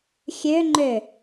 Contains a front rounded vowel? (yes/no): yes